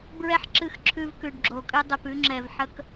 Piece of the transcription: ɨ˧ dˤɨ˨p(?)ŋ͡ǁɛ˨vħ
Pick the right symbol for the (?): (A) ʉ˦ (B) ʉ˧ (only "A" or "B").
B